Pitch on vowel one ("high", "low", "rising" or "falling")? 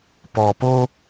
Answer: low